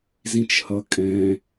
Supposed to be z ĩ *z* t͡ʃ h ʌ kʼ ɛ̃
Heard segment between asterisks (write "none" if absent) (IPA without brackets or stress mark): none